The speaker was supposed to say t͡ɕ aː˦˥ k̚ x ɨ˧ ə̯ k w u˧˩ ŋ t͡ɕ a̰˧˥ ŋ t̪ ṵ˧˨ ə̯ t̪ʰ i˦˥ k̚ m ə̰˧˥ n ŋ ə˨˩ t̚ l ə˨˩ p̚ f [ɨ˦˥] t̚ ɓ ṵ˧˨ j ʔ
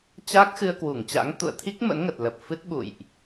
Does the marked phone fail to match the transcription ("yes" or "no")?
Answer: no